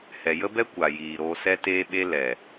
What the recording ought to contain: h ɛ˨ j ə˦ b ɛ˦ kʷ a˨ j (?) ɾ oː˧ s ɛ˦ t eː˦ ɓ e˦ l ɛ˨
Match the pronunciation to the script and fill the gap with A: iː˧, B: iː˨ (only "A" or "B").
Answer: B